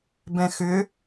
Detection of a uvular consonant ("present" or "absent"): absent